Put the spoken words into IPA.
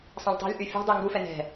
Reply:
sˤ ã lʲ tˤ ɛ̤ lʲ ʔ y fʲ ṳ dˤ y ŋ ɡ u f ɛ n ɛ̤

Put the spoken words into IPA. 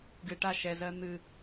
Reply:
ɡ ɨ ʈ a ʃ ɛ z ɜ n̪ ɨ

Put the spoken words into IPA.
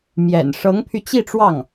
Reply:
m j ɛ̰˨˩ n ʂ ɤ˧˥ ŋ pʰ y˧ t͡ɕ i˥˧ ʈ͡ʂ w ɑ˥˩ ŋ

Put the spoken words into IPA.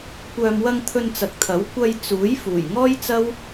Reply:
kʷ œː˨ m w ɐ˧ ŋ t̪ʰ ɵ˧ n t͡s ɐ˨ k̚ t̪ʰ ɐ˨˥ w kʷ ɐ˧ j t͡s uː˨˥ j f uː˨˩ j ŋ ɔː˥ j t͡s ɐ˥ w

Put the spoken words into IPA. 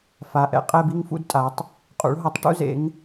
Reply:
f a˨˦ ʔ ɛ̰˩ qʼ ɛ˥˧ b i˥˧ ŋ f ṵ˥˧ d tʼ a˨˦ tˤ | qʼ ṵ˨˦ ɭ ɦ ʌ˨˦ tˤ ʈ ṵ˥˧ z ḛ˨˦ ŋ

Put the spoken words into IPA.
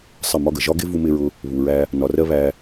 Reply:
sˤ ə˦˨ m ɒ˦ ɡ ə˨ ʒ ɒ˦ ɡ ɪ˦ v u˧ m ɪː˧ ɹ ʊ˧ | β u˨ ɹ æ˧ | n ɒ˨ r ɜ˧ β æ˧

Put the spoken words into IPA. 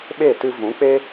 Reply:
ɓ e˦˨ t ɨ˧ v ũ˨˦ k͡p e˦

